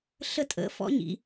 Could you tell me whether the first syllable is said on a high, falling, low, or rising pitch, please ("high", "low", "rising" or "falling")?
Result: falling